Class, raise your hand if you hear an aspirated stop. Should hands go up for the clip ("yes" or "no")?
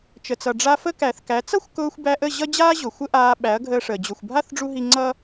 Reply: no